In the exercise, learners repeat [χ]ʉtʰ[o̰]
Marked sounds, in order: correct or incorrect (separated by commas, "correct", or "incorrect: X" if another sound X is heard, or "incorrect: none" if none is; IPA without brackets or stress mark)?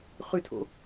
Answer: correct, correct